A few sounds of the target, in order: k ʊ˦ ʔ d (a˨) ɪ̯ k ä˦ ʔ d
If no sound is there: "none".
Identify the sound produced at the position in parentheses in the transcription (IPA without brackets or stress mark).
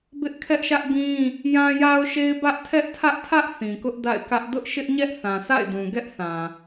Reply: a̰˦˨